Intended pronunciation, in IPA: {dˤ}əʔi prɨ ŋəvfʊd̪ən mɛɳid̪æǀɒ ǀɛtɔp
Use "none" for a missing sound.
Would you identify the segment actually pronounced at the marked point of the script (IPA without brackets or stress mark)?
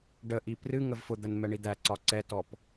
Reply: ɖ